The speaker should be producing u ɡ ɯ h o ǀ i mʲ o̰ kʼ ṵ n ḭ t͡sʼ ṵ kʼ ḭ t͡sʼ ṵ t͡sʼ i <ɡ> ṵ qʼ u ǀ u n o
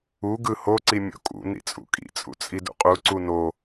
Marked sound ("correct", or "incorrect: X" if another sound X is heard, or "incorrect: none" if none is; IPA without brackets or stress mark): incorrect: d